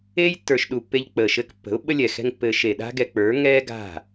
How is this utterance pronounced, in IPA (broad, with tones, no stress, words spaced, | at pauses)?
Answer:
eː˦j tːə˞˨ʃɗu˨pːe˧ʎ k͡pəː˨ʃɘː˧kpːə̤˨˦ʊ̯ ɓə˦lʲɛ˨xɛ̤˦ŋpːɘː˧ ʃe˨ ɗa̤˦ɡɛ˧k͡pə˞˨˦ ŋɛː˦ɡa̤˦˨